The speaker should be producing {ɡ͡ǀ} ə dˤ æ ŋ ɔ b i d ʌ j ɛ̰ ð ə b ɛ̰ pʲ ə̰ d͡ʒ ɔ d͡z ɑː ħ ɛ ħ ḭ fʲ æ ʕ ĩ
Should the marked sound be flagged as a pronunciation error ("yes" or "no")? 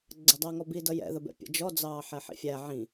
no